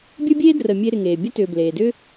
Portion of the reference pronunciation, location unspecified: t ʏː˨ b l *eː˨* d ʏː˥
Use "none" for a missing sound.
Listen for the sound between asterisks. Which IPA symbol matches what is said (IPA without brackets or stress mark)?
eː˩